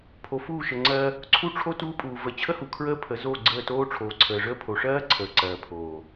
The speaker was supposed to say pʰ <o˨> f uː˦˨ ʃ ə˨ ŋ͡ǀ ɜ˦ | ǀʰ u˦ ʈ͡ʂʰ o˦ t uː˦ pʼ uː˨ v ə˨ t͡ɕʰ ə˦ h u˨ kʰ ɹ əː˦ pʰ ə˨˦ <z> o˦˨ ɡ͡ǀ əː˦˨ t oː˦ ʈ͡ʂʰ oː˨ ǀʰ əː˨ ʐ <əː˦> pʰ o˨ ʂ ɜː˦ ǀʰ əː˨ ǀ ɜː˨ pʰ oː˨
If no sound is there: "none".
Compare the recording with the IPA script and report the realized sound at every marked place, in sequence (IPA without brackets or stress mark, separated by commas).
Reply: o˨, z, əː˦